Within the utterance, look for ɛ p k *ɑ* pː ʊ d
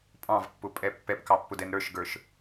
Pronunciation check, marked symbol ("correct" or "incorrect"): correct